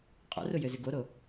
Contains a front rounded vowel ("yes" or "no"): yes